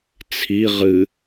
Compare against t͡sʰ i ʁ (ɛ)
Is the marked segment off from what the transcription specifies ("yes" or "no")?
yes